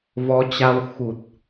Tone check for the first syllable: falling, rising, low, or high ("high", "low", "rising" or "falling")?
rising